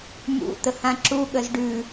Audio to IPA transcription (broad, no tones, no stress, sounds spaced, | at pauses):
m ṵ t̪ ə h ã ǁ u ɠ ə z ɖ ʉ